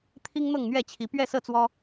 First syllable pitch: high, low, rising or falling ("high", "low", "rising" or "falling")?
high